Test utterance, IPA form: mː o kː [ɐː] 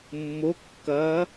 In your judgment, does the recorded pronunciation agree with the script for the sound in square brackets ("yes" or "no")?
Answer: yes